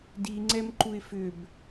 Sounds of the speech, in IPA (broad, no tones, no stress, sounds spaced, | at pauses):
d i ŋ͡ǀ ɛ m ǃ u ɪ̯ f ʏ b